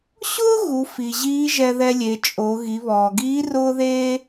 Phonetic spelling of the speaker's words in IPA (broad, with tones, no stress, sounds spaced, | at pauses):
ɕ ʊː˥ ɣ u˩˧ f i˩ ʑ iː˧˥ ʒ ɛ˧ ð ɛ˧ lʲ e˩˧ t͡ʃʼ o˩˧ ɣ i˩˧ β ɔː˩ ɡ iː˧˥ r ʊː˥ ð eː˥